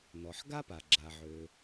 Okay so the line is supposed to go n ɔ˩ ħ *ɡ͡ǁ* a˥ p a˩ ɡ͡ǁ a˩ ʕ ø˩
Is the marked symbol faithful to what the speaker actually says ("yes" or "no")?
no